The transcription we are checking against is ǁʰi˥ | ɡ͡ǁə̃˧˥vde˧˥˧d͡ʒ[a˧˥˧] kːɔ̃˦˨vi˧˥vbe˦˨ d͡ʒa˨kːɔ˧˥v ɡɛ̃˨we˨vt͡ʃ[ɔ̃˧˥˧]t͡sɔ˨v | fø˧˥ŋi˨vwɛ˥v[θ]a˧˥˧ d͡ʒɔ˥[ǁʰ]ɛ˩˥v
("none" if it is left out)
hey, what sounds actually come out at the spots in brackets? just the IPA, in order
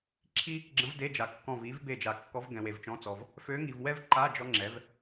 a˨, ɔ̃˧˥˧, ǃ, ŋ͡ǁ

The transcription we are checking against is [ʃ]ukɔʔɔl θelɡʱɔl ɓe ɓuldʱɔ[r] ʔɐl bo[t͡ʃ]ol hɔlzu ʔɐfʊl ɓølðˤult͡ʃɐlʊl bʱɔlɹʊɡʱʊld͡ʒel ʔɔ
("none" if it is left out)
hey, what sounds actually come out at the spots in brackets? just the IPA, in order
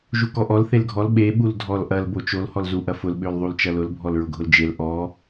ʒ, l, t͡ʃ

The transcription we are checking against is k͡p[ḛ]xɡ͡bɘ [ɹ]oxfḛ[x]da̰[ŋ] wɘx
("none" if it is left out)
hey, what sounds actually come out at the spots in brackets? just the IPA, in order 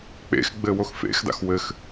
ḛ, w, x, x

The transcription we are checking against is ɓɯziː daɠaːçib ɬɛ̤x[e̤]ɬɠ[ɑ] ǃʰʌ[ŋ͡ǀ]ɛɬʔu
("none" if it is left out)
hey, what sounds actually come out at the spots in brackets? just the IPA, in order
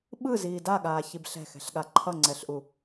ɛ̤, a, ŋ͡ǀ

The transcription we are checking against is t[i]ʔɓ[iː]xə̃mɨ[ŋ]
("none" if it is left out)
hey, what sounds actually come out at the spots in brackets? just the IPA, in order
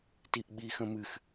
i, iː, x

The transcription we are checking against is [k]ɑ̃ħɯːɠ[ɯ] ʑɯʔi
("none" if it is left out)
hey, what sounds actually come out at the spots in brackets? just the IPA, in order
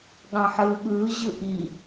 ɠ, ɯː

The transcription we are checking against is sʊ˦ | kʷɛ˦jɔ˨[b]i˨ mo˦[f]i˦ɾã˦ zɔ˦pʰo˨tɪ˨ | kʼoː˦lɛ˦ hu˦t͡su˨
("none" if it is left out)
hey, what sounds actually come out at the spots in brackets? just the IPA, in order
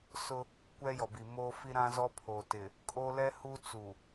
b, f

